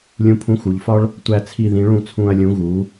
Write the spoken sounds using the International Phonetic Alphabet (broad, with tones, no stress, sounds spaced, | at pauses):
lʲ ũ˨˥ pʰ ũ˨˥ x u˩˧ ʎ f ɒ˦ ɭ | tʷ æ˨˩ t͡sʰ i˨˩ ð ĩ˩˧ ɭ ũ˧˩˧ t͡sʰ ũ˨˩ ɐ̯ lʲ ũ˩˧ ɣ u˩˧